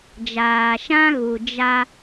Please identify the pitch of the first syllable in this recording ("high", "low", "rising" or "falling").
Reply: low